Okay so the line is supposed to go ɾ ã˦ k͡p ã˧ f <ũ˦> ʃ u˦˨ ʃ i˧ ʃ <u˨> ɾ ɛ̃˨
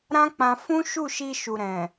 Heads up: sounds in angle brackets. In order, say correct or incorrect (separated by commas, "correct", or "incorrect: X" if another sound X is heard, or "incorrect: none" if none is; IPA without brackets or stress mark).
correct, correct